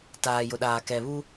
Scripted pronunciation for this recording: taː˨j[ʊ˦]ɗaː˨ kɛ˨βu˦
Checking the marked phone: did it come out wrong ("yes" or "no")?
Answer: yes